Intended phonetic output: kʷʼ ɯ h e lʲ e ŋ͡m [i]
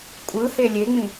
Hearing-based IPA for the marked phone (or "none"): ĩ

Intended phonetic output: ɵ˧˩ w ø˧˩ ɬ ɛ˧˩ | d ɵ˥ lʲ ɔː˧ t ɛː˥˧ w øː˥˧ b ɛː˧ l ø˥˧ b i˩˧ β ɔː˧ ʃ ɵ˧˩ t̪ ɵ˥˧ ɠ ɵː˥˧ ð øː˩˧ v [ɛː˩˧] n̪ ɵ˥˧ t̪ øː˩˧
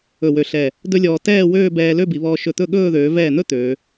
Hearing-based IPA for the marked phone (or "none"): ɛː˧˩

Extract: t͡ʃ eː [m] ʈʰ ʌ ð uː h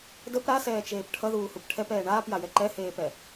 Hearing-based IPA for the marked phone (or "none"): p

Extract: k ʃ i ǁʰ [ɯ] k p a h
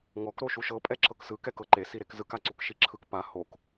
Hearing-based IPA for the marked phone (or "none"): ɯ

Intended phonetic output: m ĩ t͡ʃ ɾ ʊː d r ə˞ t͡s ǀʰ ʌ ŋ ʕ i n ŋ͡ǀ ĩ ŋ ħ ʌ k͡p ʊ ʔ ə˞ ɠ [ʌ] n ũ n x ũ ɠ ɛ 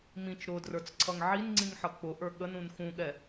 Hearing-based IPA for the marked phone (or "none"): ə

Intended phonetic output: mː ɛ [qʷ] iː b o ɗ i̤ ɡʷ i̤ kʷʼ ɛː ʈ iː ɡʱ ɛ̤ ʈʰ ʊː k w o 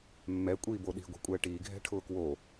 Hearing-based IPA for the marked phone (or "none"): kʷʼ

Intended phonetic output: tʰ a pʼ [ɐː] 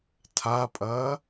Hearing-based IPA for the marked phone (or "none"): ɐː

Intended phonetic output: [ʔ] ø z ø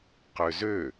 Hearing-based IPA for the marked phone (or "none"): q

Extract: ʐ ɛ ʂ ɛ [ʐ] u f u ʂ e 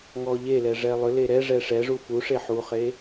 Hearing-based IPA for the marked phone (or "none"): ʐ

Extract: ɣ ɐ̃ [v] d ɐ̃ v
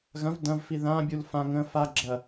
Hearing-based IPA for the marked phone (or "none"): v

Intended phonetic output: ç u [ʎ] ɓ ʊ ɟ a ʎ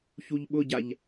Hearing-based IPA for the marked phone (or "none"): ʎ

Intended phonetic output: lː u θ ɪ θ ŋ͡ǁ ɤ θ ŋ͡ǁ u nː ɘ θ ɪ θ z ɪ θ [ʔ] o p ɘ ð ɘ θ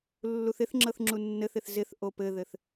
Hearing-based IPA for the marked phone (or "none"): ʔ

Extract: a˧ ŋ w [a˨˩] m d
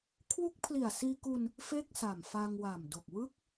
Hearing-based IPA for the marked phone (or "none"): a˨˩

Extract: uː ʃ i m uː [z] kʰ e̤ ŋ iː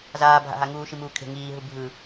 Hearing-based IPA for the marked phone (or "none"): none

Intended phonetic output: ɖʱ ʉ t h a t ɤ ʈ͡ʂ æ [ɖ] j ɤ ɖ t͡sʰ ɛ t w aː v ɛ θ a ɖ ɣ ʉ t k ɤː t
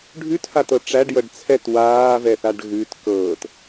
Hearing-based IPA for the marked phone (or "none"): ɖ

